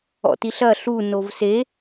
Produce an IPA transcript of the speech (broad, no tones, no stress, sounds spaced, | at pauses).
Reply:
ɔ̰ t i ɬ ɐ ɬ u n o v s e